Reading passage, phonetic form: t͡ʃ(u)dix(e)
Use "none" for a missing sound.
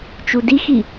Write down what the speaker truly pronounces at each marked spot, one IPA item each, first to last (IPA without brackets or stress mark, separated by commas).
u, i